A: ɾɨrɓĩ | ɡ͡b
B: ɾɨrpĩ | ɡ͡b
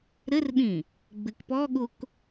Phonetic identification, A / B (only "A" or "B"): A